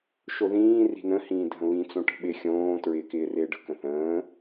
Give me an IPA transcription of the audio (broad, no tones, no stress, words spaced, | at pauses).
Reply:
ʃoðĩː ri̤nə̃ hĩːdʱə̃βĩ t͡sõʈə̤ɓɪ xʲõː tɹɪːkɪːrɪːɖə̤ kə̃θə̃ː